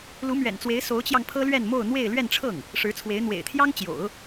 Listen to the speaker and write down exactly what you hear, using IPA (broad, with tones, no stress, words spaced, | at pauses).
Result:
lu˧˥mɥɛ̰˨˩nt͡swe˧˥ɪ̯ so˧˥ʊ̯t͡ɕjɑ˧ŋ pʰɤ˥lɥɛ˥˧nmo˥˧ʊ̯ n̪we˥˧ɪ̯ lɥɛ˥˧nʈ͡ʂʰɤ˥˩ŋ | ʂɻ̩˧˥t͡sʰwe˧˥ɪ̯ n̪wḛ˨˩ɪ̯t̪ʰjɑ˥ŋt͡ɕjo̰˨˩˦ʊ̯